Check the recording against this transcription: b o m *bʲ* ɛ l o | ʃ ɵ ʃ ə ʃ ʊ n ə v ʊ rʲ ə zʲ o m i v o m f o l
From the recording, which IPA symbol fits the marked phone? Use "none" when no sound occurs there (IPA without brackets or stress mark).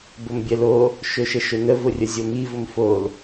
bʲ